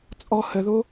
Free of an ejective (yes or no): no